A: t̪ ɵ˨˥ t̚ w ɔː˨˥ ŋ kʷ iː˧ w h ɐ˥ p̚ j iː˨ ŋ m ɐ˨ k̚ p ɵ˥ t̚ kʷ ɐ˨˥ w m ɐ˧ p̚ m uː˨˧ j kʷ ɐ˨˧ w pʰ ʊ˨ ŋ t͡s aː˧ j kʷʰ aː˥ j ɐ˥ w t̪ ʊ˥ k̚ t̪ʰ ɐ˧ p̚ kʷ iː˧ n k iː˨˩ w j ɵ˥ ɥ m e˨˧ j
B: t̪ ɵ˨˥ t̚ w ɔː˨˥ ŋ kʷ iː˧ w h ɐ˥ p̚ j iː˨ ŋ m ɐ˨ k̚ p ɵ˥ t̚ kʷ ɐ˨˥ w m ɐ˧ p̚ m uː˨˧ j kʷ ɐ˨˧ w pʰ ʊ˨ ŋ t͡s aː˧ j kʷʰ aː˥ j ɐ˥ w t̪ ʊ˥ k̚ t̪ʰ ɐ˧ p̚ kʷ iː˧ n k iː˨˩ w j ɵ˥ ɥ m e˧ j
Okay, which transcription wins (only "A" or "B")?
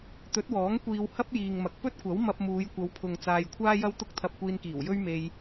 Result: B